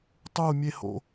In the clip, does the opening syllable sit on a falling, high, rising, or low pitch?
falling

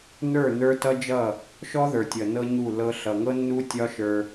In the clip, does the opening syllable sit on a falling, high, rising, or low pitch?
falling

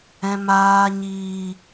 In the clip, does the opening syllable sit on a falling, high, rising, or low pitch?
low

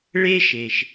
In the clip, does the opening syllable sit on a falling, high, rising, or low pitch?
high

